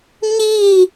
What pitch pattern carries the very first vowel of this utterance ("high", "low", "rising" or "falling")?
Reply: falling